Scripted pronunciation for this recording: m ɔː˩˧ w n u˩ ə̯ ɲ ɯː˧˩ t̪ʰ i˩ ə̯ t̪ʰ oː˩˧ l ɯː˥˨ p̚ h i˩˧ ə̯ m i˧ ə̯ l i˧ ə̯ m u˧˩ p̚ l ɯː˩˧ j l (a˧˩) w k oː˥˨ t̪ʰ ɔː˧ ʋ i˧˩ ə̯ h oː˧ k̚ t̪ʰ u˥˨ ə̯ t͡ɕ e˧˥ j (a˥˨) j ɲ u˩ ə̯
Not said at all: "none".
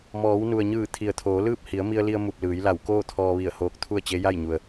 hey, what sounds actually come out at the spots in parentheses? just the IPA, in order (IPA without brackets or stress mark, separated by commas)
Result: a˧˩, a˥˨